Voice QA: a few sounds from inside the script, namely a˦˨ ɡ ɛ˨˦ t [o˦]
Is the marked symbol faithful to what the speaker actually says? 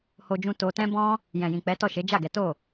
no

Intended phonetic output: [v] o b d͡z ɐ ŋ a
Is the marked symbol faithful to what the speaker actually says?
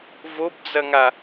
yes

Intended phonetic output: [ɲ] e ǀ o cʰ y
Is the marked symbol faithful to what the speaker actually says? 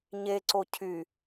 yes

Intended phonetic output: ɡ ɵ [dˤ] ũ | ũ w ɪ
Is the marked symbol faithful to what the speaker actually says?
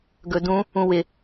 no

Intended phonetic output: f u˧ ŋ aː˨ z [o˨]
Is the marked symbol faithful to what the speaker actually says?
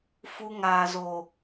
yes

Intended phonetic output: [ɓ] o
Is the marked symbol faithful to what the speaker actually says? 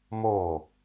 no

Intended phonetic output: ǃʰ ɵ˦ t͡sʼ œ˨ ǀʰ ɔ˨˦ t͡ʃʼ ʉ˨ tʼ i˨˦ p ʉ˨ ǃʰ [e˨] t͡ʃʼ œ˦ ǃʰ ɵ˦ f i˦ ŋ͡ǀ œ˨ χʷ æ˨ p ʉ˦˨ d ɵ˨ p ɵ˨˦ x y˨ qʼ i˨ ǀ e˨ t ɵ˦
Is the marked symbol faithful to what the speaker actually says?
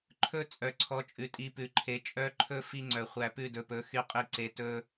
yes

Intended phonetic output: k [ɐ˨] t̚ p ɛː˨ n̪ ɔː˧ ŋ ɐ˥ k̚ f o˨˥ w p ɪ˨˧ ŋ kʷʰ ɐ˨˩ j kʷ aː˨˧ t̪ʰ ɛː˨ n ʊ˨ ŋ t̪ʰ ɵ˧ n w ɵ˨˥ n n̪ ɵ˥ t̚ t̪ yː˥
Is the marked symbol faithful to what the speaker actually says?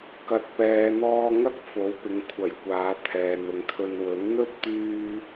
yes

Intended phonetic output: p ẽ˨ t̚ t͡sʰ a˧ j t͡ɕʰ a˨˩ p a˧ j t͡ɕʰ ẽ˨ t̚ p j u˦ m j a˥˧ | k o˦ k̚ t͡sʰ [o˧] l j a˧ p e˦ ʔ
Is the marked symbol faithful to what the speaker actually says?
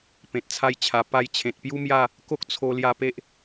yes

